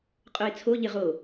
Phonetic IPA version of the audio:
qʼoɪ̯t͡sʰoʎɪ ʁo

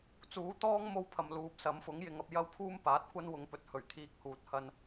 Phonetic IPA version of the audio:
t͡suː˨˥ t̪ɔː˥ŋ mo˥wpʰɐ˨mluː˨p̚ sɐ˨˥mfʊ˨˥ŋjɪ˨˧ŋɐ˧p̚ jɐ˥wpʰuː˥mpaː˨˥t̚kʷɐ˥n wʊ˨˧ŋpɵ˨˥t̚ hɵ˨˩ɥt̪ʰiː˧k̚huː˨t̚ hɐ˧n

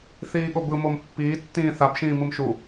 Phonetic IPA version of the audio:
θiːɠobɯmom pːiː tːĩːθabʃĩː mɯmʃu

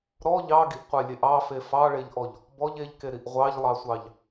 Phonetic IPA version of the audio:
ɾɔ ʎɑɡiʔqʷelʲeʔ ɑfe fɑɭeʎʔɔʎ | bɔʎ eʎkeɾiʔ ʁʷɑʎlˠɑsʷɑʎ

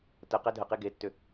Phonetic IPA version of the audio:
tə qɛdʱəqe ɡetːʏ

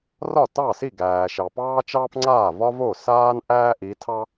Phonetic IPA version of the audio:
rɒ˥˩tɑ˥˩si˥˩ ɡæː˨ʃɑ˨pɑː˥ t͡ʃɑː˥pŋ͡ǀaː˥˩vɒ˥vo˥˩ saː˥n ʔæː˥ʔi˨˦tʰɑ˥

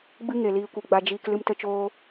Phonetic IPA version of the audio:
ɡ͡bɨ˦ ŋe˨liː˧kʷi˨ ɡ͡ba˧d͡ʒiː˧k lɨ˧mtə˧t͡ʃoː˧

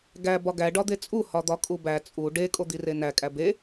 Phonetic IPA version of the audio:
ɡæ bɒɡæ ɖɒd̪et͡sʼu hɒd̪ɒkʼubæ t͡sʼu ɖe kʼod̪irenæ kʼæbe

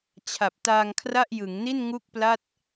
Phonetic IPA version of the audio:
t͡ɕʰa˨˩p̚taː˧ŋkʰra˥˩ʔ jɯ˩˦ŋni˥˩n ŋu˥˩k̚pla˥˩t̚

